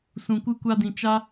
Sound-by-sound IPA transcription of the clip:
s ũ˨ kʷ ɨ˧ kʷ a˧ d ĩ˨ t͡ʃ a˦

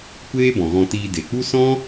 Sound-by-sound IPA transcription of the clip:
kʷ eː˦ b ɔ̃˨ ɣ ɔ̃˧ t iː˧ d e˨ k͡p u˦ s ɔ̃˦

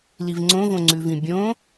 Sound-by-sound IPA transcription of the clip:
l i v ŋ͡ǀ õ v õ ŋ͡ǀ ʉ v ĩ bʲ õ

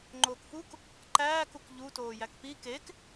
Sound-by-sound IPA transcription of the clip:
ŋ͡ǃ oː k f u k | ǃ æː k u k ʎ u t oː j æ k p iː k e k

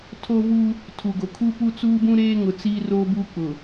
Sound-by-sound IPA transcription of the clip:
tʰ o˦ v u˦ | tʰ u˨ ɡ o˨ kʰ u˦ p u˦ t͡s uː˦ b ũ˦ ɾ eː˦ ŋ ʊ˨ t͡s i˦ r oː˦ b uː˦ k͡p ʊ˨

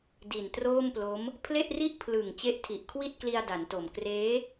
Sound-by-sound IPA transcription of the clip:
d i˨˩ n t r oː˥˩ m p l o˦˥ m | pʰ l e˥˩ ʔ r i˥˩ ʔ pʰ l ɯ˨˩ ŋ t͡ɕ e˦˥ ʔ tʰ i˨˩ ʔ kʰ w i˥˩ t̚ k l i˧ a̯ d a˩˦ n t o˨˩ m k r eː˦˥

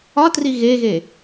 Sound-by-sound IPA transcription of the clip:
ɒ t r i ɣ e ɣ e

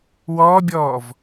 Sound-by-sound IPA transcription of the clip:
w ɔː bʲ ɔː v

